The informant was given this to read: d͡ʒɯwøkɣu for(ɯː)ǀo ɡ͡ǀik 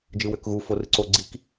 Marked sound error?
yes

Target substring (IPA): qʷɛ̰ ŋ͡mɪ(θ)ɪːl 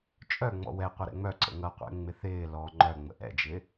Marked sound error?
no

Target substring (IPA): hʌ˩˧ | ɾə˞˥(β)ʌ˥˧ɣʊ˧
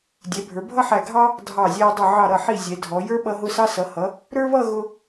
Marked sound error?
no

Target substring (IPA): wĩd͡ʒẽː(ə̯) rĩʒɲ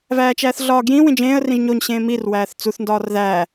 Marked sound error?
no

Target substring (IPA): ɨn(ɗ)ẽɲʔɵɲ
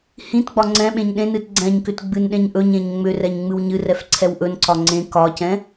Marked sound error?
no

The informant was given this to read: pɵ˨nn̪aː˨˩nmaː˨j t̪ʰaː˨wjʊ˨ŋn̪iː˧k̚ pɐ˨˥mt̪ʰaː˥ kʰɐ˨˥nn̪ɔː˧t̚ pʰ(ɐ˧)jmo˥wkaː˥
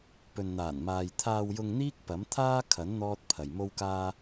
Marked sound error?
yes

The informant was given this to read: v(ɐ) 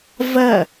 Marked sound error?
no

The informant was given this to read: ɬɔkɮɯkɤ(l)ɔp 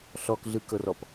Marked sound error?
yes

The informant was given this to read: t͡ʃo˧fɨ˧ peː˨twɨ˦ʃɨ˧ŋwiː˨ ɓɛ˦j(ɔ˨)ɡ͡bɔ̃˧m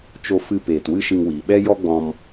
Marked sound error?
yes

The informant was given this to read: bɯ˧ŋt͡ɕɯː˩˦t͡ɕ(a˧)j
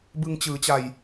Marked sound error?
yes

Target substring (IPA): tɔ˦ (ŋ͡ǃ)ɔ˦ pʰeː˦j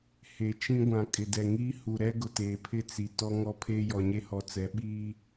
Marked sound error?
yes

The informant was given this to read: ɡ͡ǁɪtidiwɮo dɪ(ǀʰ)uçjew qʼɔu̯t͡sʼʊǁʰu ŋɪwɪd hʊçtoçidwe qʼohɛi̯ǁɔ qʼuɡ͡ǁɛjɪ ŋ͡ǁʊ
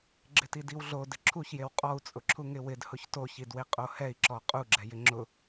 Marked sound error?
yes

